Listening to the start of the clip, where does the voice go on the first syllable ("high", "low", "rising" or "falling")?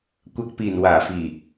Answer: low